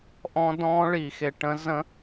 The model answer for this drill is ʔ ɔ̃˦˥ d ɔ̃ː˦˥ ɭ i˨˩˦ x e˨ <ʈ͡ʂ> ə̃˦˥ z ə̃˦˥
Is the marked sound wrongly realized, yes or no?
yes